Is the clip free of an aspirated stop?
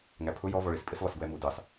no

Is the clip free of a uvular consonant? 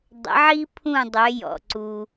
yes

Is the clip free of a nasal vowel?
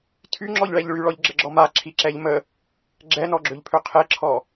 yes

